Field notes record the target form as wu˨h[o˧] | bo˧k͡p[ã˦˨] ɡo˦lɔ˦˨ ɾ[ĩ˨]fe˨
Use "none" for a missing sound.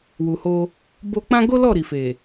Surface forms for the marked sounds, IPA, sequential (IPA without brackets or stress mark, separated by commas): o˧, ã˦, i˨